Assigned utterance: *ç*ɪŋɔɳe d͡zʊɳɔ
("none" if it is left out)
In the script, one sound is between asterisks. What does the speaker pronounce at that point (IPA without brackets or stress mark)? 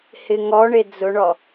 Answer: h